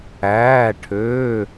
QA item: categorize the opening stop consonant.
aspirated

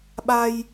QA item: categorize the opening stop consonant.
implosive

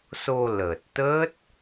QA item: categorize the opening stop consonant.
plain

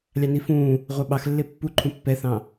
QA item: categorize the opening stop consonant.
implosive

